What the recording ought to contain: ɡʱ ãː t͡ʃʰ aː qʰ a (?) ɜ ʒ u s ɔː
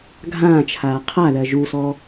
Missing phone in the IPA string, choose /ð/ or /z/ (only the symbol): ð